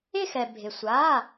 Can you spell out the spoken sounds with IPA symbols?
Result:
ɪ˦˨ x ɛ˩ bʱ ɪ˩ sʷ a˩˧˩

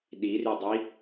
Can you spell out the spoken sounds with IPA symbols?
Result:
ɗ i r y dˤ i

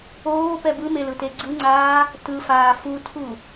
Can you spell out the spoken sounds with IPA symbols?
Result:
oː p ɛ b ɯ m e l ɯ t e ɡ͡ǀ ɯ ŋ͡ǀ aː | t ɯ f aː f u tʰ u

